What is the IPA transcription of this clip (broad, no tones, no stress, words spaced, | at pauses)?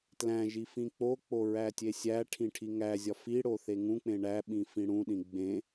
tlæ̃ ʒifĩk͡pok͡po ɹætʲesʲæʈʰĩ ʈʰiŋæzʲɒ fiɽo θeŋũk͡pẽ ɳæɓĩ fĩɽũɗĩ ɡ͡bẽ